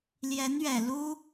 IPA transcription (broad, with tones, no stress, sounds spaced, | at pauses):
l j ɛ˧˥ n ɥ ɛ˨˩ l u˥